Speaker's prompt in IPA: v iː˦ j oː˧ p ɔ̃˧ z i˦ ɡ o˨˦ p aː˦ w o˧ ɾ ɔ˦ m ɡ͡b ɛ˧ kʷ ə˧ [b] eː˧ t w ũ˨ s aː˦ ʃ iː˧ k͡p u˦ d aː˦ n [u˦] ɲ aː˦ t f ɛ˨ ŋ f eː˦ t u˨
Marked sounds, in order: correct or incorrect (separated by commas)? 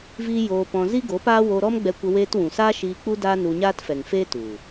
incorrect, incorrect